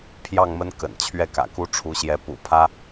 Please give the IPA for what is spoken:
pʰ j ɑ˥˩ ŋ m ə˥ n k ə̰˨˩ n t͡ɕʰ ɥ ɛ˥˩ k ä̰˨˩ k u˥ ʈ͡ʂʰ u˧˥ ɕ j ɛ˧˥ p ṵ˨˩ pʰ ä˥

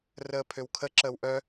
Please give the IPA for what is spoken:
r əː pʰ ø w kʰ ə ǁ əː w ʔ œ

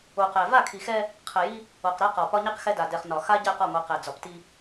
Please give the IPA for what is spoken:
o˨ q ɛ˨ v a˦˨ kʰ i˨ x ɛ˦ | qʰ ɛ˨ j i˦ | o˨ q ɾ ɛ˦ q ɒ˨ p ɒ˦ ɲ i˦ q x ɛ˦ d a˨ d ɛ˨ χ n ɒ˨ x a˦ ɟ ɛ˦˨ q ɒ˦˨ ŋʷ i˨ q ɛ˨ d͡z ɒ˨ p t i˦

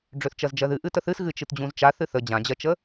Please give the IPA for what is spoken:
ɖ͡ʐ ø θ t͡ʃ ɜ z d͡ʒ ɜ ð ɨ ʔ ɨ t ə θ ɨ s ɣ ɨ t͡ʃ ɨ t d͡ʑ ũ z t͡ʃ a θ ɨ θ ə d͡ʑ ã d͡ʑ ɜ t͡ʃ ə

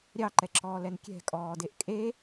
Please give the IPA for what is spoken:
ɾʲ ɑ ǃ ɛ ǁ ɔː l ɛ n kʲ ɛ̤ kʼ ɔː d e ʔ kʼ e

